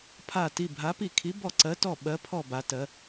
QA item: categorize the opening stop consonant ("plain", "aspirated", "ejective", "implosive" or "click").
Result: aspirated